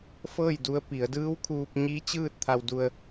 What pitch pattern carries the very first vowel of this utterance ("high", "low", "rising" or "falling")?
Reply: falling